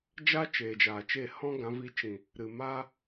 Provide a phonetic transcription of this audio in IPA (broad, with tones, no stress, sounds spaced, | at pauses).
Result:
d͡ʒ a˦ t͡ʃ eː˨ d͡ʒ aː˨ t͡ʃ e˦˨ h ɔ̃˦ ɡ ã˨˦ v i˧ t͡ʃ ĩ˨ | ɾ ɨ˨ m aː˦